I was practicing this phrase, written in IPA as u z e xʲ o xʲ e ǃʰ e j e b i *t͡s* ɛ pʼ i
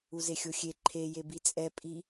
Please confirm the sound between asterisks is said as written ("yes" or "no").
no